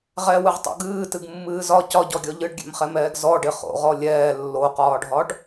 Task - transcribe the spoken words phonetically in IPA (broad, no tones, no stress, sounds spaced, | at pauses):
ʁ ɛ w ɨ ʁ tˤ o̰ ɡ ɨː t ɨ ɡ mː ɨː z ɒ c ɒ ɟ ɔ ɡʲ ɔ ʎ ɨ ɖ ɡʲ ɛ̰ m χ ɛ m ɛː ɡ z ɔ ɖ ɪ χ o̰ ʁ ɔ lʲ ɛː lː o q ɒː ɖʱ ɒ ɖ